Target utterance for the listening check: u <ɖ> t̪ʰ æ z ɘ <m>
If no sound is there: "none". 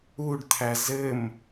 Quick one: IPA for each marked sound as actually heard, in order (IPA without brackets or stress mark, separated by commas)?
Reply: ɖ, m